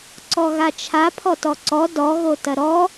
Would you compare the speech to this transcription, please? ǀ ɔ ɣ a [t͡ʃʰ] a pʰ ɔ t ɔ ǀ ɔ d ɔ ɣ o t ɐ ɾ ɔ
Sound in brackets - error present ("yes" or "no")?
no